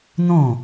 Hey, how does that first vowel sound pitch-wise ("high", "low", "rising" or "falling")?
falling